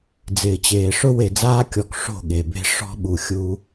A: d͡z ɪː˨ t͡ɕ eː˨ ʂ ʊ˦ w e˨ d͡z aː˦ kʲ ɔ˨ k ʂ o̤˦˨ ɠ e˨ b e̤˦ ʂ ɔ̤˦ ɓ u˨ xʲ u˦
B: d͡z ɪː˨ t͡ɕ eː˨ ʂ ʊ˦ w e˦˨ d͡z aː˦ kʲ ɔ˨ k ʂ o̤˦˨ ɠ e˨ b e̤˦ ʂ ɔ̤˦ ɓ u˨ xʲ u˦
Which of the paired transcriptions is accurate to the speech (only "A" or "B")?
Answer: A